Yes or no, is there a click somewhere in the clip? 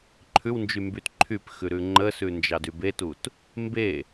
yes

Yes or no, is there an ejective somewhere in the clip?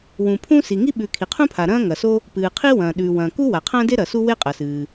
yes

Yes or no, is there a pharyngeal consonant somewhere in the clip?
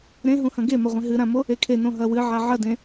yes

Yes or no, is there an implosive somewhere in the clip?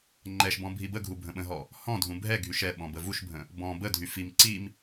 yes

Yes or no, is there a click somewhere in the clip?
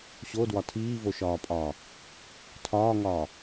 no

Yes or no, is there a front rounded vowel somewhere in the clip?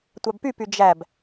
yes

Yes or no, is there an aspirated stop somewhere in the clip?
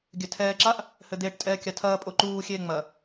yes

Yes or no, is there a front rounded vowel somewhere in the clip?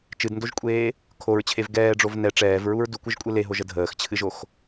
no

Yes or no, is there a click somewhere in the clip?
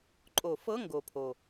yes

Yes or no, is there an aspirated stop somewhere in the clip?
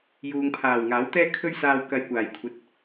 yes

